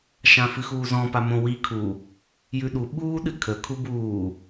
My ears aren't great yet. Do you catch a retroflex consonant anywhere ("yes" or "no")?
no